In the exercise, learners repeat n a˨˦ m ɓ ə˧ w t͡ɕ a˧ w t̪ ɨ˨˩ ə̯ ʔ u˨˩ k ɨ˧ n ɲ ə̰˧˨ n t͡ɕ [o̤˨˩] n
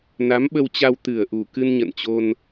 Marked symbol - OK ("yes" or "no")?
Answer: no